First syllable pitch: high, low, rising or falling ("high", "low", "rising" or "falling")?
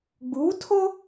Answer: rising